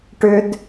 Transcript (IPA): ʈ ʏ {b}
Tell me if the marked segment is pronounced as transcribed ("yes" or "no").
no